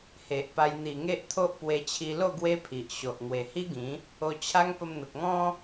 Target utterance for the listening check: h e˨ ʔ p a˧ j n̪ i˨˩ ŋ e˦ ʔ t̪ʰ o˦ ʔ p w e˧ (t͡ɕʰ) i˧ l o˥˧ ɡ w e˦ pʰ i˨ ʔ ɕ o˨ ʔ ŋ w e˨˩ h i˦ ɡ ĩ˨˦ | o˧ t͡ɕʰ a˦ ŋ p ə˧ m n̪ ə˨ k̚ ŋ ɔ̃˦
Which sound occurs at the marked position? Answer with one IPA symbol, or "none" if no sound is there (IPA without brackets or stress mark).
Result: t͡ɕʰ